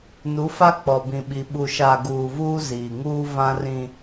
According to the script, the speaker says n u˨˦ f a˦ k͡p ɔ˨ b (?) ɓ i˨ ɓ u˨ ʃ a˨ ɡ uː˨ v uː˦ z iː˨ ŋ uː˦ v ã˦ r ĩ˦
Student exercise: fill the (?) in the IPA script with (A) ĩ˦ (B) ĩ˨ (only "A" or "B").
B